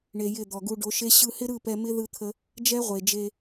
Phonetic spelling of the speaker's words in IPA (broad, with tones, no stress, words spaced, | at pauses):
ɳe˧jɪ˦˨ d̪ɔ˨ɡu˧ɖo˨˦ʃe˦ ɕɯ˧hɪ˦ɾɯ˦˨ pɛ˧mɪ˦ ðɯ˦t̪ʰə˦ | d͡ʒɛ˦ʁʷe˨d͡ʒe˧